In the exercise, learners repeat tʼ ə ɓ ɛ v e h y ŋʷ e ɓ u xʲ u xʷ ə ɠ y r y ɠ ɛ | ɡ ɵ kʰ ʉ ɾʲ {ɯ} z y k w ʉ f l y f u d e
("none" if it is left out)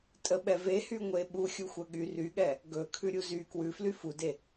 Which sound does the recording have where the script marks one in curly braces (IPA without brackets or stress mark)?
u